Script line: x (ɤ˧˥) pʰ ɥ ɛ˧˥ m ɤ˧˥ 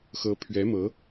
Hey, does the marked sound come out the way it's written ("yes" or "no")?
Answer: yes